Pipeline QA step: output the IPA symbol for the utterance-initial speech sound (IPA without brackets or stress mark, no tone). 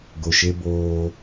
ɡ